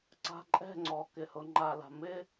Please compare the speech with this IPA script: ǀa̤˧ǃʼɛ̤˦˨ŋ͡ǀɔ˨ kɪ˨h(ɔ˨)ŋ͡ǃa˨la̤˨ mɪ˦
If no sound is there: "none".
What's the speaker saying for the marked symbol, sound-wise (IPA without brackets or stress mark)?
ʊ˨